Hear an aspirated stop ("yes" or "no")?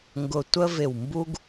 no